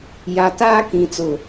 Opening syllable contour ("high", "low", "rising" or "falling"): low